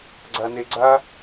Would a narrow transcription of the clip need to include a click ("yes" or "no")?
yes